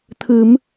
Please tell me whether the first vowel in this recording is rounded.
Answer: no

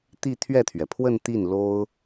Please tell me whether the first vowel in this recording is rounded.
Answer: no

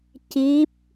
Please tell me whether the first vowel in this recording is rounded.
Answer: no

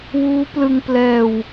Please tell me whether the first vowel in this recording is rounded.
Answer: yes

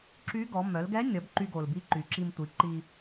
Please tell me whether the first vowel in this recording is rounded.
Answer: yes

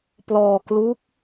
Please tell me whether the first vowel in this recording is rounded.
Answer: yes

